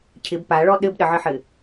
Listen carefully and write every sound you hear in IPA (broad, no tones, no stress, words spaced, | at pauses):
cʰɪb paɭɔ ɗɘbɗəʕɘħɘ